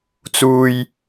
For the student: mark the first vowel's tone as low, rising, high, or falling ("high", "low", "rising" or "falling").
high